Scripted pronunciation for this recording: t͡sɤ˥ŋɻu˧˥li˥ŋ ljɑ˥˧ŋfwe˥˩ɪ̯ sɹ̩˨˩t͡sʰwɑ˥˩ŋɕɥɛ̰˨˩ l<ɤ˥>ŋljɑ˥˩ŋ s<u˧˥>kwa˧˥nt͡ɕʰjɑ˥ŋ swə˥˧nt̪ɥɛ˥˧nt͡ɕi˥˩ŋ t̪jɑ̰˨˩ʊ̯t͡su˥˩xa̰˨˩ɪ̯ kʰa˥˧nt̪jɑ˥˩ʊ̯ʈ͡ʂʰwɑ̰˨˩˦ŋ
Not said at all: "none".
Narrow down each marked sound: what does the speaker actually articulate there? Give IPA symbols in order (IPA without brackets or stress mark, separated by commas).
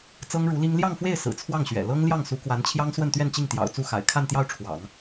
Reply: ɤ˥, u˧˥